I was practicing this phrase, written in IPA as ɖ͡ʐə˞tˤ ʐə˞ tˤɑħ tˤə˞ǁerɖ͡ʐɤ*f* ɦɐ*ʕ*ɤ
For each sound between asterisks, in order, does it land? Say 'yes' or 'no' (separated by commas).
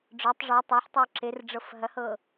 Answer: yes, no